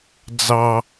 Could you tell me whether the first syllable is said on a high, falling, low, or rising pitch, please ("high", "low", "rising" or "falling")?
low